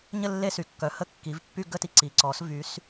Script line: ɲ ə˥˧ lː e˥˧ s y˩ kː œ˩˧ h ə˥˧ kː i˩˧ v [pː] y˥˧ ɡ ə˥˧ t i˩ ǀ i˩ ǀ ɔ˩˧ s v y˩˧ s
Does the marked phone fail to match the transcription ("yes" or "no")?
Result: no